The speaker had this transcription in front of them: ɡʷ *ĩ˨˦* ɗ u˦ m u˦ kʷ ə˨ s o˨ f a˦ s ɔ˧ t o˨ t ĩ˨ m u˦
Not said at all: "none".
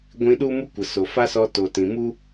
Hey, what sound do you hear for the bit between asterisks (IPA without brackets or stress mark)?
ĩ˧